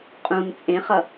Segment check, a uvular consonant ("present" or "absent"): present